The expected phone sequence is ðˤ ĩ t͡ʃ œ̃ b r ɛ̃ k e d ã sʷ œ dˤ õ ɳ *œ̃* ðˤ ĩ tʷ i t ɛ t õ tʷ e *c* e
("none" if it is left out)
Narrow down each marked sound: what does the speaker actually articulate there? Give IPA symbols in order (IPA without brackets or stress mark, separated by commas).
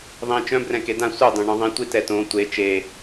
œ̃, t͡ʃ